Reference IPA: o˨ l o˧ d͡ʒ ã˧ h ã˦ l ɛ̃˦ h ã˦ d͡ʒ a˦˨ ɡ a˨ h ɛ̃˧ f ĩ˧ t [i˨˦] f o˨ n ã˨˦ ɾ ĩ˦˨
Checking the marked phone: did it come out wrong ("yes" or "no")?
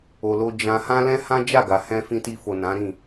yes